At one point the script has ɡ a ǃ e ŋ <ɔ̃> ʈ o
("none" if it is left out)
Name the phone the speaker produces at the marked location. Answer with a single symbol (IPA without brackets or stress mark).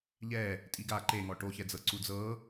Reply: ɔ